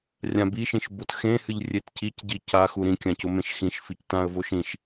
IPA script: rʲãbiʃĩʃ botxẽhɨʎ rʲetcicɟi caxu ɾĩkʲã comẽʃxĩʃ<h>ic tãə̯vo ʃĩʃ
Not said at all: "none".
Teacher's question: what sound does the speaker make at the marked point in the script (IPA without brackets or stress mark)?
f